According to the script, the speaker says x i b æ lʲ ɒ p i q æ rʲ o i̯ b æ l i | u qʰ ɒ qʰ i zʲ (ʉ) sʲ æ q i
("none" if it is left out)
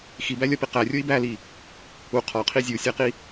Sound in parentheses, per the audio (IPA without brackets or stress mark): u